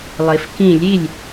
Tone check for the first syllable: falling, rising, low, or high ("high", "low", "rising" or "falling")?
low